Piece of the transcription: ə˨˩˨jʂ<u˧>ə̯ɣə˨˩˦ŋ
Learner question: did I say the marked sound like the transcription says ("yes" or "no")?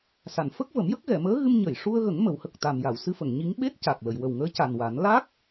yes